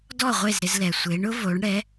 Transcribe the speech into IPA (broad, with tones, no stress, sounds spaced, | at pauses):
d ɔ˥˩ ʁʷ e˥˩ z ɾ ɪ˧ z l ɛ˩ sʷ e˩˥ ɳ ʊ˥ v o˩˥ ɳ ɽ ɛ˩˥